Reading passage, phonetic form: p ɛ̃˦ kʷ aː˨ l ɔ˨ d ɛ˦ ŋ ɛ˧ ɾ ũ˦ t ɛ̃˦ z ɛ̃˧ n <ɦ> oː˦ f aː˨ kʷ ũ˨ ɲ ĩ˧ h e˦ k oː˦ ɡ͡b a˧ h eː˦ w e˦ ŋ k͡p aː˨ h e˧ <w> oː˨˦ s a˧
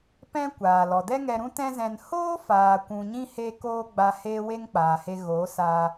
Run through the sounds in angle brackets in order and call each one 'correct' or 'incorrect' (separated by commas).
incorrect, incorrect